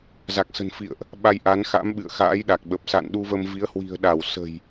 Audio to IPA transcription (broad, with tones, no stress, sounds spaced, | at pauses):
z a˨˩ k̚ s ə̤˨˩ n f ḭ˧˨ ə̯ ʔ | ɓ a˧ j ʔ a˨˦ n x a̰˧˥ m ɓ ɨ̰˧˨ ə̯ x a̰ː˧˥ j ɗ a˨˩ k̚ ɓ ə˨˩ p̚ s a̰˧˨ n ɗ u˧ v ə˧ m v i˨˦ ə̯ h w i̤˨˩ ə̯ ɗ a˧˩ w s ə̤˨˩ j